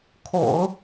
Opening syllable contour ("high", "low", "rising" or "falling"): low